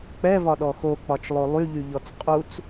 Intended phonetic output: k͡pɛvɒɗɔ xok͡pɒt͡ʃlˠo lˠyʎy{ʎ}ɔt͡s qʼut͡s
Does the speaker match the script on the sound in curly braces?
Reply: yes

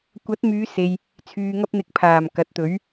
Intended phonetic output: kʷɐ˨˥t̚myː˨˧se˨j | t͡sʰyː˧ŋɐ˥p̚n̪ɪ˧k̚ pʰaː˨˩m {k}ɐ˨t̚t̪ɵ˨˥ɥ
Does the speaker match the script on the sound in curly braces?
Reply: yes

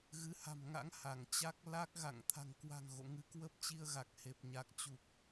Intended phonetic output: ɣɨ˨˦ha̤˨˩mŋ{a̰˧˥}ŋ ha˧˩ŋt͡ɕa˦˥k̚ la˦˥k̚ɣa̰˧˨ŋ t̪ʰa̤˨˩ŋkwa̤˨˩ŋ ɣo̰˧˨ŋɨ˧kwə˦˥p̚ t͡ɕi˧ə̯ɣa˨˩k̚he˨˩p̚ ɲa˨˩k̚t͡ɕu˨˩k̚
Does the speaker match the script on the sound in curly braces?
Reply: yes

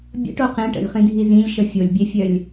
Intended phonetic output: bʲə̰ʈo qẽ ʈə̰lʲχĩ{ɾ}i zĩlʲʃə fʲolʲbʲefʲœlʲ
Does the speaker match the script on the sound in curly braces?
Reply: no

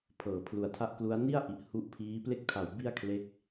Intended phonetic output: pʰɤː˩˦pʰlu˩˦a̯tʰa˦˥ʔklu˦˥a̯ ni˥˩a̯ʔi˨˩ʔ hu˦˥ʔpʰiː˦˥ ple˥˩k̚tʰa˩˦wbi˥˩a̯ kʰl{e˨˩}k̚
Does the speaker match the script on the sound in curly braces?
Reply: no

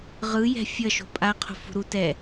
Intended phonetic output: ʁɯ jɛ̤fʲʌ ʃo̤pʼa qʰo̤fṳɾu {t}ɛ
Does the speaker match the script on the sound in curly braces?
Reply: yes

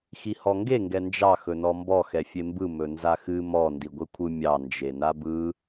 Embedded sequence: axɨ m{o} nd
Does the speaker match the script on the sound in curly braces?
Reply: no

